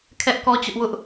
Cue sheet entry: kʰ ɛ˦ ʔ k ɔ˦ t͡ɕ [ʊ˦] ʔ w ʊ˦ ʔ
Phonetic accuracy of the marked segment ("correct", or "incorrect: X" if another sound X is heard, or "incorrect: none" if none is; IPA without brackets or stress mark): correct